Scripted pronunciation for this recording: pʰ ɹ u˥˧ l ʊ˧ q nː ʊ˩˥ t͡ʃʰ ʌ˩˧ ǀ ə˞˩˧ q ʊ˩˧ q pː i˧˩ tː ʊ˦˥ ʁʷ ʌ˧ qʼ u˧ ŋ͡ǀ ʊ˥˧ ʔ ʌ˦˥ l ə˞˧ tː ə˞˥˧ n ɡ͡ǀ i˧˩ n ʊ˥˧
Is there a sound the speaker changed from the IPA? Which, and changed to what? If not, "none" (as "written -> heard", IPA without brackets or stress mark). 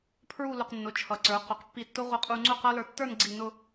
ʔ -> q